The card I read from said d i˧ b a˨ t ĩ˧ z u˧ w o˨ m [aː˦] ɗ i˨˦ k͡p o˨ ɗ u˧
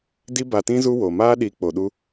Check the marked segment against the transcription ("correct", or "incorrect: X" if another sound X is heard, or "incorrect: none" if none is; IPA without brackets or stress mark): correct